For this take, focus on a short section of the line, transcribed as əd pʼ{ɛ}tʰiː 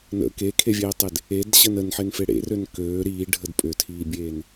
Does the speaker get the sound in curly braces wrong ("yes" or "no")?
yes